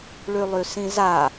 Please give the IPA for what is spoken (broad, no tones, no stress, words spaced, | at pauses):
ɭylˠysĩza